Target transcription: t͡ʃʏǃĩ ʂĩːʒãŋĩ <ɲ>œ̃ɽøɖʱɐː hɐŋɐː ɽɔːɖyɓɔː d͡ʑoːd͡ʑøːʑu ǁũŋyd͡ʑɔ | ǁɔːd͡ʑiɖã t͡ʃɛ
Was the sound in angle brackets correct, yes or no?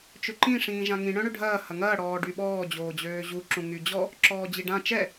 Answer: no